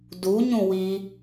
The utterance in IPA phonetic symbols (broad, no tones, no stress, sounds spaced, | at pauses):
d u ɲ ũ w i